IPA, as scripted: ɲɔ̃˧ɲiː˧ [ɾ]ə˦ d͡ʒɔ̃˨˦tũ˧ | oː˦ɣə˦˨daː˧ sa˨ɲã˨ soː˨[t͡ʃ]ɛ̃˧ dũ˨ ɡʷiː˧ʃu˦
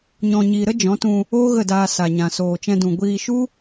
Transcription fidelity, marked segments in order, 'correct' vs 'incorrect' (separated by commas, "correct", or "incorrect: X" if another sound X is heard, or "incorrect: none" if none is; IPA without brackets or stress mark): correct, correct